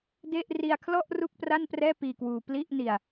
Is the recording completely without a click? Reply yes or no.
yes